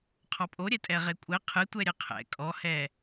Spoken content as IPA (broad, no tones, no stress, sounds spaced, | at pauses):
qʰ ɔ pʼ o ɾʲ ɛ tʼ ɛ ʁ e kʷʼ ɛ qʰ ɨ tʷ ɛ ɾʲ ɘ qʰ ɛ̰ kʼ ɔ h ɛ